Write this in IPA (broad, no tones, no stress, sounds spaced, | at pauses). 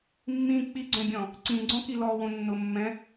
mː ĩ k͡p i ɡ͡ǀ ɛ̃ bʲ ɔ̃ | ǀ ĩ ɡ͡ǀ ɔ̃ k i l ɔ w õ nː ʊ mː ɛ̃